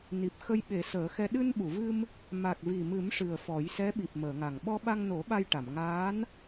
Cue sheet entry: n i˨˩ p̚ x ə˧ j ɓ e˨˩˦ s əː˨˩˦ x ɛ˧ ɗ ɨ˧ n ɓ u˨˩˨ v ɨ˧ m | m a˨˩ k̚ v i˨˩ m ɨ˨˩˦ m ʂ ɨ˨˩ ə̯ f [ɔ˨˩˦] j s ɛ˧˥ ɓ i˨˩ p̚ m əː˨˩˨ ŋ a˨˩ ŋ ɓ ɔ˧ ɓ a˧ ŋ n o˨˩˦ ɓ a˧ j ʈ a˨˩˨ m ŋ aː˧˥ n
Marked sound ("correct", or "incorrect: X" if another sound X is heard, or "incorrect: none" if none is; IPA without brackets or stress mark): correct